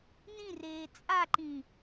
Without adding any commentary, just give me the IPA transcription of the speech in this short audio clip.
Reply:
n ĩ r eː t͡sʼ a ǃ ĩ

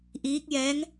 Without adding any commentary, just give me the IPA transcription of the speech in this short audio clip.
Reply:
ʔ iː˧˥ k̚ j ɛː˧˥ ŋ

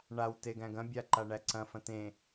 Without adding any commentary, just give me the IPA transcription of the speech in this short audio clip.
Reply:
ɳ a w t e ɡ æ̃ ɡ ɐ̃ bʲ a ǃ a ɳ æ ǀ ɐ̃ f ɐ̃ t ẽ

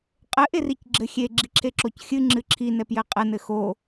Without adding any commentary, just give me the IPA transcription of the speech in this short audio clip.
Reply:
qʼ ɘ ʔ e r i c ɡ͡ǁ ɘ xʲ e ɡ͡ǁ i ǁʰ e ǁ o c xʲ ɨ ŋ͡ǁ ɨ ǁʰ i n ɛ p j ɘ qʼ ɛ n ɘ x o

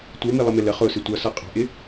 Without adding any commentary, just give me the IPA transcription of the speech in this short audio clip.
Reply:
tʷ ə˞ m i lˠ ə m ɪ l ə χ ʊ s ɪ tʷ ʌ s ʌ qʼ ɑ̤ ʔ ɪ

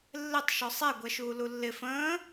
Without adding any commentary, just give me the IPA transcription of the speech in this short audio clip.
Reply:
lː ɪ tˤ ʃ ɔ sˤ ɛ ɡʷ ɛ ʃ uː l u lː ɪ f ə̃ː

